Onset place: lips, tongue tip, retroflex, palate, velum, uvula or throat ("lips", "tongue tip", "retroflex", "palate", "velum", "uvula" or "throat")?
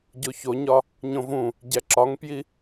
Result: palate